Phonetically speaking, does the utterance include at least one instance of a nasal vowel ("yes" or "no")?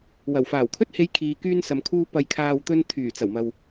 no